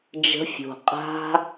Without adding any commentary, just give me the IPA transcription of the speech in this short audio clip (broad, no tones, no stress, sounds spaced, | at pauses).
d͡ʒ ə̤ fʲ o̤ qʼ a̤